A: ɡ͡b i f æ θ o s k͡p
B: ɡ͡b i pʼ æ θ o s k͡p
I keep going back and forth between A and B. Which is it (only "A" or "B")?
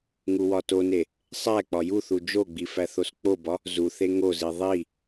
A